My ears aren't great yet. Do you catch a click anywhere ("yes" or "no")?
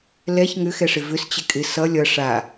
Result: no